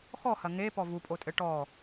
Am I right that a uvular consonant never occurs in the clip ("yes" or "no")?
yes